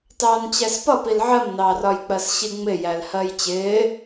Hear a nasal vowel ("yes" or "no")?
no